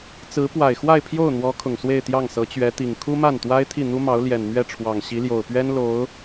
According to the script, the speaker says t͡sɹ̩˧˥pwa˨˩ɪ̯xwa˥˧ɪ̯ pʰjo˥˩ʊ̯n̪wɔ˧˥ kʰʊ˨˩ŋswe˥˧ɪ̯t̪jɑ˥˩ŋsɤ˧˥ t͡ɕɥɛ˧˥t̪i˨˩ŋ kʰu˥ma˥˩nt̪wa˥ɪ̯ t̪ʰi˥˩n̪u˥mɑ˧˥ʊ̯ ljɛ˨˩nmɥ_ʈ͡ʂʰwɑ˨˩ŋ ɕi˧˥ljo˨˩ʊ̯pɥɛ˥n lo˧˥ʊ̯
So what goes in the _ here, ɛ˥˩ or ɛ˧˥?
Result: ɛ˥˩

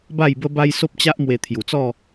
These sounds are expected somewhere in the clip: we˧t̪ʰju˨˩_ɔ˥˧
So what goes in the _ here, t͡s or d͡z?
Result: t͡s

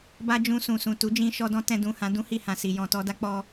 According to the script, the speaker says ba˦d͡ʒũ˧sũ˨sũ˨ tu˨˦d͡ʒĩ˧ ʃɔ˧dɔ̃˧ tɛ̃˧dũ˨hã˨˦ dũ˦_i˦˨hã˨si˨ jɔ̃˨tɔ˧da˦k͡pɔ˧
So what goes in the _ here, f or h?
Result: h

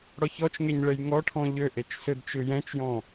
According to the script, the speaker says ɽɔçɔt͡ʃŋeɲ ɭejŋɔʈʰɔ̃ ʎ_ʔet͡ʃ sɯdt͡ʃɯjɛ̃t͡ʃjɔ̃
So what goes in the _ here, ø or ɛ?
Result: ø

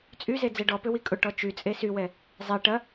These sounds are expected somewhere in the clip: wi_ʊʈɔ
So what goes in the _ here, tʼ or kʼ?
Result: kʼ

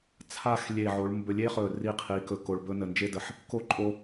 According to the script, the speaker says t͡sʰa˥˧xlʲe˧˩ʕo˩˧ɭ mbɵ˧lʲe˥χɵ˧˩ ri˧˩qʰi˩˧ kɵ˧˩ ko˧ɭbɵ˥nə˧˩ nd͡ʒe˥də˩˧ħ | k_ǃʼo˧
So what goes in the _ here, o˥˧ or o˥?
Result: o˥˧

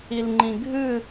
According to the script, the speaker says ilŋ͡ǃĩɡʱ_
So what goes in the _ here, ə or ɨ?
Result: ɨ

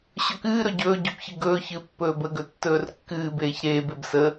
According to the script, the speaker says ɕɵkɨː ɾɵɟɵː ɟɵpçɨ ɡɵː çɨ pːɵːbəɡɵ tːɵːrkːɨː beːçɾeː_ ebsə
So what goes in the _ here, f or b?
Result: b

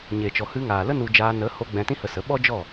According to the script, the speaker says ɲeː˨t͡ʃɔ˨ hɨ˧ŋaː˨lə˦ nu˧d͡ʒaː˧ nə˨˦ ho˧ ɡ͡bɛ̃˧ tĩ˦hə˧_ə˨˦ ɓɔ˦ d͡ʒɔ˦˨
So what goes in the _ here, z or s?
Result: s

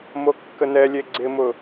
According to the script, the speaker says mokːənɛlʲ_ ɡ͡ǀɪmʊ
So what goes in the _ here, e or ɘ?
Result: e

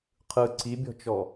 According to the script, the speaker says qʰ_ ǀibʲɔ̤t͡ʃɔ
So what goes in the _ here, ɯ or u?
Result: ɯ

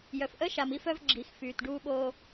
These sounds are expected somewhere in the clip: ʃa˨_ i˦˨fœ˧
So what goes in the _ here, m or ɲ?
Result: m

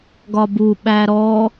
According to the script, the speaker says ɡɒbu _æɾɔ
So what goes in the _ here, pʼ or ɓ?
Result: ɓ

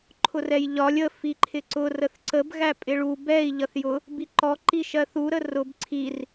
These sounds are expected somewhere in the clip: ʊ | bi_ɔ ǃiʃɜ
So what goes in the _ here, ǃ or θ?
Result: ǃ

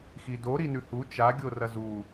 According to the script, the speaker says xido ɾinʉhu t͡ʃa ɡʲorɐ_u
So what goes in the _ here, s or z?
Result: z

